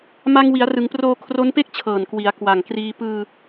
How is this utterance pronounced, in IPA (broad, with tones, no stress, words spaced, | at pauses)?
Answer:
ma˧ŋ wi˩˦a̯rɯ˩˦ŋproː˧ kʰro˦˥npe˥˩k̚t͡ɕʰɤː˨˩n kwi˩˦a̯kwa˨˩ŋkriː˧ pɯː˧